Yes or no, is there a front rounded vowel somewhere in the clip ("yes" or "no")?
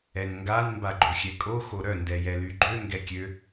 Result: yes